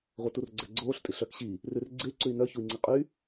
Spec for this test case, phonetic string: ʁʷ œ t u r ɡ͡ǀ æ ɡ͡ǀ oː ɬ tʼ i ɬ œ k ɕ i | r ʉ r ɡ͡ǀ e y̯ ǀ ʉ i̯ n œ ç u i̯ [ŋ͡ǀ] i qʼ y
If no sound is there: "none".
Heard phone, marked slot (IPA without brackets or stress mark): ŋ͡ǀ